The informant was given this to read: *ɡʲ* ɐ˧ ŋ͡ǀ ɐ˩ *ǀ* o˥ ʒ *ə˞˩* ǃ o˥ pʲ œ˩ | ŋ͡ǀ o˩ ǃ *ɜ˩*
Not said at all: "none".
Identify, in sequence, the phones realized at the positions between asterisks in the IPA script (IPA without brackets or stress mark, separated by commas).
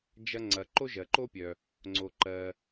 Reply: d͡ʒ, ǃ, ɜ˩, ɜ˩